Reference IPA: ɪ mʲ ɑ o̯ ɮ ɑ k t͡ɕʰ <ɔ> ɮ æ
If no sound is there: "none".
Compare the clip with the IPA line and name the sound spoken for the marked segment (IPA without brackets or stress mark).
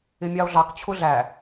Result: ʊ